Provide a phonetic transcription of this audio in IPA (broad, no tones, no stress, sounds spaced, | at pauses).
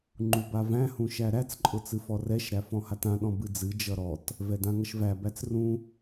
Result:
ŋ͡ǃ u b a v æ̃ h ũ ʃ æ ɾ æ t͡s ǃʼ ʊ t͡s ɨ f ɔ r ɛ ʃ ɾ æ f ɔ̃ h a t ã ɗ ɔ̃ b ɨ d͡z ɨ d͡ʒ ʌ ɾ ɔ t | v ɛ d ã ŋ ʌ ʃ v æ b æ t͡s r ũ